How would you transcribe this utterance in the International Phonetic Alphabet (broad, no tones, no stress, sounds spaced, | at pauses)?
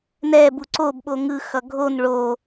n ɛ b u ǀ o b ɓ o ŋ ɯ x ʌ ɡʱ o n ɭ o